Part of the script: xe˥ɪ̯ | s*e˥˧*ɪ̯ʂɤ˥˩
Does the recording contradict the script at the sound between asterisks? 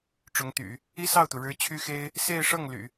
no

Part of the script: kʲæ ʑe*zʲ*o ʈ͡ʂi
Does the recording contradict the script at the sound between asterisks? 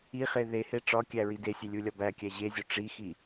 no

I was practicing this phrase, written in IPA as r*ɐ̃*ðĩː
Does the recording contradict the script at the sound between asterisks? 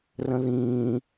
yes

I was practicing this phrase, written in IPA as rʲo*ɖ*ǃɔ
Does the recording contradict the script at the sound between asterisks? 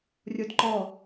yes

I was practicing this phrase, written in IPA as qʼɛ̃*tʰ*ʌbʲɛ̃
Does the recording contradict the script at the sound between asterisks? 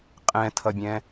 no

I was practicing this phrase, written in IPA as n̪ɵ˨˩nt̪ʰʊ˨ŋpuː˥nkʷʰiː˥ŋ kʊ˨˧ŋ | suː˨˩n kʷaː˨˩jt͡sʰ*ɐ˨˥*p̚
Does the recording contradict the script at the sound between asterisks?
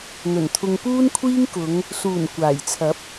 no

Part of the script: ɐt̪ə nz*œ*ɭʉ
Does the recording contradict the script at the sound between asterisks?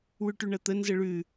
yes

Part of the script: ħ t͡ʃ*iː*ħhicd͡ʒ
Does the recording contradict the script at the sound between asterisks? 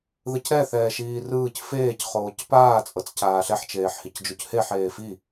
yes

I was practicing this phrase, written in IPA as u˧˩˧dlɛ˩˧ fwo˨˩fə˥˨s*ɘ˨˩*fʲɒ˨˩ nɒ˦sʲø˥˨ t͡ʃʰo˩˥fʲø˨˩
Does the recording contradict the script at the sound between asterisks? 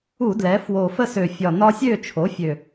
yes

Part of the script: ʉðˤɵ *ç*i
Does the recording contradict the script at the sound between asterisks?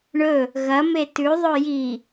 yes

